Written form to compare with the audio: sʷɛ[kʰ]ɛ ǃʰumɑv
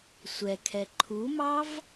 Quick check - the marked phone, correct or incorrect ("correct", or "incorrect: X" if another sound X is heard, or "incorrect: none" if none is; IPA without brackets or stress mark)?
correct